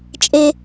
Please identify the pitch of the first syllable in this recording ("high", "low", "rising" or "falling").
high